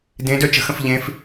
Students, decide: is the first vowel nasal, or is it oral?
nasal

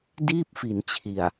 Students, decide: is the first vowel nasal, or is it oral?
oral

